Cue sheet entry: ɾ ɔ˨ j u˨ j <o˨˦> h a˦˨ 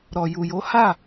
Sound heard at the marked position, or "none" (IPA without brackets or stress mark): o˨˦